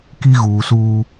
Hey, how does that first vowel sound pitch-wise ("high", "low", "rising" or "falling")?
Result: high